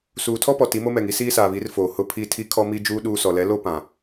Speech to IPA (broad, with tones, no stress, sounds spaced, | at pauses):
s uː˨ tʰ ɔ˦ p ɔ˨ t i˨˦ m o˦ m ɛ˨ ŋ i˦ s iː˦ s aː˨ β i˨˦ r f oː˨ h ʊ˦ pʰ i˦ tʰ i˦ kʰ ɔ˦ m i˦ d͡ʒ uː˦ ɗ uː˦ s ɔ˨ l ɛ˨˦ l o˦ p ã˨